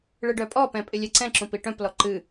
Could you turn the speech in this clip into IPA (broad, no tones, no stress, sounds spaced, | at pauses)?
ɭ ɨ ɖ œ pʼ ɔ p ɛ̃ pʼ ɪ lʲ ɛ ǀ ɛ̃ ǁ ũ p i ʈ œ̃ p l ɔ ǃ ɨ